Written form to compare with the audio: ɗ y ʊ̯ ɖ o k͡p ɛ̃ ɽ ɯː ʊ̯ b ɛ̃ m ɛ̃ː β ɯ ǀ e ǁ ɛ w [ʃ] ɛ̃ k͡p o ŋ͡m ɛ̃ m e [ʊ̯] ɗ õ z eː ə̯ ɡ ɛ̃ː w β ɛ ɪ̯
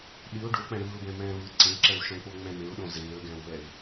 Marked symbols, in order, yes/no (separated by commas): yes, yes